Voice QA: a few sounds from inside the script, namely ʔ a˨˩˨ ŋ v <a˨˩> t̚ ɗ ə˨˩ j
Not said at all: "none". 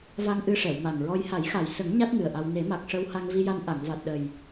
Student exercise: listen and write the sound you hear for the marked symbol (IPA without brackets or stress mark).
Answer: a˨˩